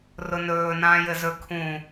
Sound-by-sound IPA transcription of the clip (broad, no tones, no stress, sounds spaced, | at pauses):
r ʊ n ɵː n ãː j ɘ z ɵ kʰ ũ